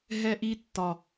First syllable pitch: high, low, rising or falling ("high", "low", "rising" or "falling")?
high